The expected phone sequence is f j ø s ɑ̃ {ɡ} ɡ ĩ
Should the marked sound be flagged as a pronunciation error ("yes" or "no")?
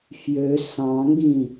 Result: yes